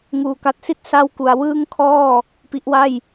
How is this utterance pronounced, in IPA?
ŋuː˧ka˦˥t̚si˥˩t̚ sa˥˩wku˧a̯ wɯː˥˩ŋkʰɔː˥˩ | pi˦˥ʔwa˥˩j

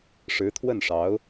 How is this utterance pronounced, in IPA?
ʂɻ̩˧˥t̪ʰwə˥˩nʂɑ˧˥ʊ̯

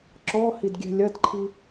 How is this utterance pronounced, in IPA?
ǁɔ hidɡʲɛ̤lʲɐdǃʰi

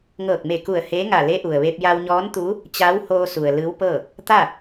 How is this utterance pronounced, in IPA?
ŋɤː˧˩k̚me˧˩ku˧˩ə̯ heː˧˥ŋa˧˩le˧˥ ʔu˩ə̯ʋe˧p̚ ja˧wɲɔː˧˥nt̪uː˧˥ | t͡ɕa˧˥whoː˧su˩ə̯ lɯː˧˥wpɤː˥˨ | t̪a˥˨

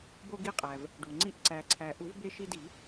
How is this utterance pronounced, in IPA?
bo˧ɡi˧qʼæ˩v | ɖu˩ŋ͡ǀi˧ʔ ǀæ˩ǀʰæ˩ ʔu˨˩˦vbe˧ʃi˧di˨˩˦

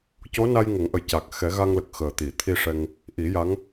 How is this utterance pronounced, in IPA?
co˧˥na˧j ŋə˨˩˦ŋʔə˨˩j ca˨˩k̚xɛ˨˩˦ ɣa˧ŋlə˨˩k̚ xəː˨˩t̪i˨˩˨t̪ʰi˧ʂɛ˧ŋ | ʔi˨˩˦ ja˧˥ŋ

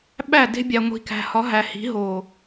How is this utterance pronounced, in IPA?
ɓæ˦˨de̤˦bʲæ˨ ŋʷi̤˨kæ̤˨hɒ˨˦ ɦæ˨hi̤˨˦ ɦo˨

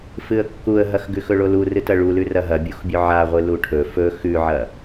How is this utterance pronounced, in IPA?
fɨə̯kːuə̯ɦɐx ɡʉxɵɭolu rɨtɐɭulʉ rɐɦɐ bʲuxbʲɵʕaʁʷɨ luʈʰɵ fɵ xʉʕɐ

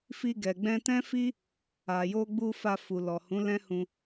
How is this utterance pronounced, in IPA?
fi˧ɡɛ˨ ɡ͡bɛ̃˧tɛ̃˦fi˦ | a˨jo˧ɡ͡bu˧ fa˧fu˨ lɔ˨hũ˨˦ lɛ̃˦hũ˧

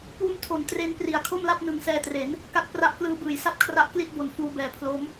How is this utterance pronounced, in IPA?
puː˧mtʰo˩˦n tre˧n pri˩˦a̯kʰo˥˩mla˥˩p̚ nɯ˨˩ŋsɛː˧tre˩˦n | ka˥˩t̚pra˦˥ʔklɯː˦˥ bɯː˩˦jsa˥˩p̚kʰra˦˥ʔkli˥˩t̚ bo˨˩n fuː˧bɛː˨˩pʰlo˦˥m

